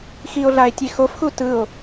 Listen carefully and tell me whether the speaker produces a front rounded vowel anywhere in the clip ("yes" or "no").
no